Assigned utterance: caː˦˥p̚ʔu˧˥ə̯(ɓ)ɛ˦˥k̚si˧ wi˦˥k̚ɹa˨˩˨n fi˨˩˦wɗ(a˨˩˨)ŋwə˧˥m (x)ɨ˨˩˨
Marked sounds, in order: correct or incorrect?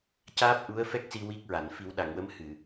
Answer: incorrect: f, correct, incorrect: h

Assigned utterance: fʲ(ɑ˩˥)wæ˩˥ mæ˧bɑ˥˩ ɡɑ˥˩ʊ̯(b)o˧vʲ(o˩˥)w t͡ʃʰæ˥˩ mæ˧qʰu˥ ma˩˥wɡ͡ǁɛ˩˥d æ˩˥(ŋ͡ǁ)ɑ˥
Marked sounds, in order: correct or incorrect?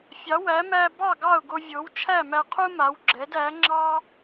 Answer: correct, incorrect: ɡ, correct, correct

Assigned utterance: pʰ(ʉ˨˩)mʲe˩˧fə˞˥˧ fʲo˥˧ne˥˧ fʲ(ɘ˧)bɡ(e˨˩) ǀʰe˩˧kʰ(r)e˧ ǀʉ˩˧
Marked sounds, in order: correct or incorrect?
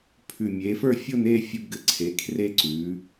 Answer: correct, correct, incorrect: ɘ˨˩, correct

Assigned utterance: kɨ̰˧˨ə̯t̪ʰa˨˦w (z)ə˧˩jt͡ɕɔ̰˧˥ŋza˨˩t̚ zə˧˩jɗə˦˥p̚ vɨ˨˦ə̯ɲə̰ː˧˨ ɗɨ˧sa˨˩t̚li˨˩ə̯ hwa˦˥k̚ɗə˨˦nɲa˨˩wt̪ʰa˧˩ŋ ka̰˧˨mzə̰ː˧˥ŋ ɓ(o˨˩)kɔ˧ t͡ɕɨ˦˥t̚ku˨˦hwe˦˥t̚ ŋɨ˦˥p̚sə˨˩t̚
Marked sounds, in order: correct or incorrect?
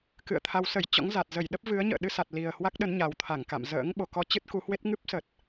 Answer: incorrect: s, correct

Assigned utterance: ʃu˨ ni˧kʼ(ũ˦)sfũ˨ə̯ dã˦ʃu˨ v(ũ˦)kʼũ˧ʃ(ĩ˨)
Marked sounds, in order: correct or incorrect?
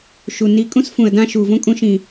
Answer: correct, incorrect: õ˦, correct

